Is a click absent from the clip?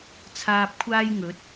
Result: yes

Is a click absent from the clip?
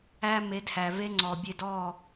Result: no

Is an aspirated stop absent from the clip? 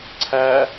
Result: no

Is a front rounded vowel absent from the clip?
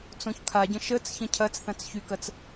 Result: no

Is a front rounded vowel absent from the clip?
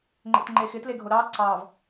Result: yes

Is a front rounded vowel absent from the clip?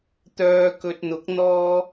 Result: no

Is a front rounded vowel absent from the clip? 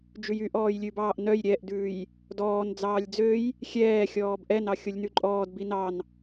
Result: no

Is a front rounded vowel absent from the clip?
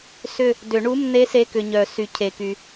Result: no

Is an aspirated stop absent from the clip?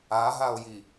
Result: yes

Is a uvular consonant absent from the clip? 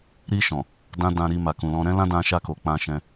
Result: yes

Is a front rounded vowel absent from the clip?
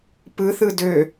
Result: no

